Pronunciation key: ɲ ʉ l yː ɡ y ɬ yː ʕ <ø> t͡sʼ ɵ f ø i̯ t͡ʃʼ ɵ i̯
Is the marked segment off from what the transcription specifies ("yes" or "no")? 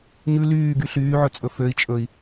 yes